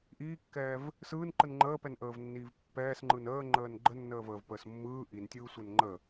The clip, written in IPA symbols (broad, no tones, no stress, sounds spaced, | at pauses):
ʔ iː kː ɛː v | s ɯː n ǃ ɯ n ŋ͡ǃ əː p ɛ n ʔ əː v nː iː v pː ɛː s ŋ͡ǃ ɯ n əː ŋ͡ǃ əː n ɡ͡ǃ ə nː əː v əː v p əː s mː ɯː ʔ i n tʲ ɯː sʷ ɛ n ŋ͡ǃ ə